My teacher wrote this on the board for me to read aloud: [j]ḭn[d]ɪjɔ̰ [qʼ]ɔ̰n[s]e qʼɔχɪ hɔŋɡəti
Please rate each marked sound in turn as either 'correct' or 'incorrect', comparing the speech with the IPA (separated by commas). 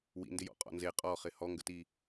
incorrect, correct, correct, incorrect